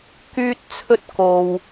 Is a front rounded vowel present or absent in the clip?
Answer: present